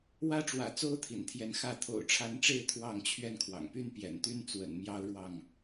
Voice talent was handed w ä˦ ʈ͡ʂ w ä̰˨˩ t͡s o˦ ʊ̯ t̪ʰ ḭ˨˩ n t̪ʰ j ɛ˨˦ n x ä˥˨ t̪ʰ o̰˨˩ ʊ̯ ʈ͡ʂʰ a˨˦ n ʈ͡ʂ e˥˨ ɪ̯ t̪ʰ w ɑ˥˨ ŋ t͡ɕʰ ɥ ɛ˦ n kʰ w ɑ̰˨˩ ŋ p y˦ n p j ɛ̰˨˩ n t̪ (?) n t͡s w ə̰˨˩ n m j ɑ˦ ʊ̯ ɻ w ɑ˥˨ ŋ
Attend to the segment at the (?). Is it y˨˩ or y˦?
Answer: y˦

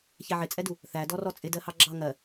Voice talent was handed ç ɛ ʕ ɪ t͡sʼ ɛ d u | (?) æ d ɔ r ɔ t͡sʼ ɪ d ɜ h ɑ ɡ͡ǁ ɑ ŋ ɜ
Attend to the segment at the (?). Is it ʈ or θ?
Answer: θ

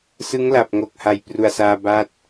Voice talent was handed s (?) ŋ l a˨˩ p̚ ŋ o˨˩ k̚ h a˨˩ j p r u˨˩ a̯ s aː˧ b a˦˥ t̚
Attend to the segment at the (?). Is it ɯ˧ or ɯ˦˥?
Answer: ɯ˦˥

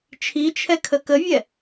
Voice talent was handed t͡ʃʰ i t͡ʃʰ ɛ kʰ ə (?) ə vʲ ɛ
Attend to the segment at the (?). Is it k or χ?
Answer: k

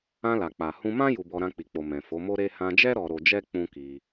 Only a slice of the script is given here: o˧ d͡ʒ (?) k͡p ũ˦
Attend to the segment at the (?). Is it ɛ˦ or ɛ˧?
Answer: ɛ˦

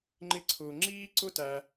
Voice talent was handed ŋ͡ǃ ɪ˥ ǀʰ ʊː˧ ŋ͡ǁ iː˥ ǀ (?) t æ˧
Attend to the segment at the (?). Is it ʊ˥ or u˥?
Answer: ʊ˥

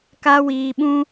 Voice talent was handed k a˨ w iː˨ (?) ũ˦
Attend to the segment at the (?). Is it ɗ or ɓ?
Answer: ɓ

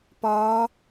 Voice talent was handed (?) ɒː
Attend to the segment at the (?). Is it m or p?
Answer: p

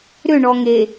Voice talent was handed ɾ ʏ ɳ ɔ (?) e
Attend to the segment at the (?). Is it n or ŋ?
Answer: ŋ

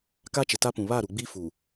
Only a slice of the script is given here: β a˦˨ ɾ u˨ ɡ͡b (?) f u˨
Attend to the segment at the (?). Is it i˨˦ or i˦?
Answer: i˦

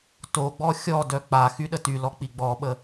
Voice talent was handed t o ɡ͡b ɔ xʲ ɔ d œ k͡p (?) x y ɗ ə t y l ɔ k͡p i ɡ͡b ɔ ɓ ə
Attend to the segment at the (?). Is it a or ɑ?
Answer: a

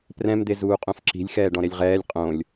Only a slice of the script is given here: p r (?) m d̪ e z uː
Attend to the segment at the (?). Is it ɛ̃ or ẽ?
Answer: ɛ̃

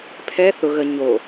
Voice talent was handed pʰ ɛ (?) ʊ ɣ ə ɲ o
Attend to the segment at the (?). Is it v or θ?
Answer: θ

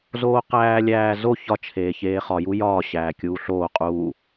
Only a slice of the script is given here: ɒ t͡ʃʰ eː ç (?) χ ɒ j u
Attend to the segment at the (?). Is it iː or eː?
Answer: eː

